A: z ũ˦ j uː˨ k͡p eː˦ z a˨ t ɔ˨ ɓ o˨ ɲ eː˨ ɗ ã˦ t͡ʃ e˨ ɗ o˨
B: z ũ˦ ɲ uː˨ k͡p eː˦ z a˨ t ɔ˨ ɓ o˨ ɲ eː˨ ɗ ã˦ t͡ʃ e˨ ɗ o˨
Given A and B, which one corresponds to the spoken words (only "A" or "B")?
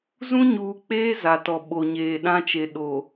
B